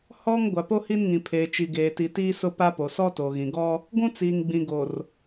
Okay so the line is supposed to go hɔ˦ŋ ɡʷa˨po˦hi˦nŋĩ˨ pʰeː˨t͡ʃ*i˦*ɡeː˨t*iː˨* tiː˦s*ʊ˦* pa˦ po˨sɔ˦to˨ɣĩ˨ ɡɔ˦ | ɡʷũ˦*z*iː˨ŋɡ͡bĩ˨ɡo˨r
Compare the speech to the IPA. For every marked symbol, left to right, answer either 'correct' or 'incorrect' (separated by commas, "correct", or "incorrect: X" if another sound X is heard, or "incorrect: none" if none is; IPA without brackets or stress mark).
incorrect: i˨, incorrect: i˨, correct, incorrect: t͡s